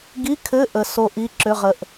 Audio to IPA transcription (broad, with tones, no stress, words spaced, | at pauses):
ɡi˧˥˧kʰɘ˧˥˧ ʔə˧˥˧ so˦˥ʔi˧˥˧ǁʏ˧˥˧ ʁə˦˥ʔ